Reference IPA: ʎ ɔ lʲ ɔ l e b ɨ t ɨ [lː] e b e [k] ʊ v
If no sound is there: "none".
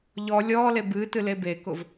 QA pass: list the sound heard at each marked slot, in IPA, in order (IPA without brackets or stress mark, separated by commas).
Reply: l, k